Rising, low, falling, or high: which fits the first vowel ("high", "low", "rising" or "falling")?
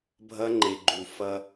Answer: high